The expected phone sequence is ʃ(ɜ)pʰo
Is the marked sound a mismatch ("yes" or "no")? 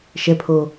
yes